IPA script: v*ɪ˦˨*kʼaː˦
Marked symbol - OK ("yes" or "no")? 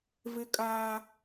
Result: no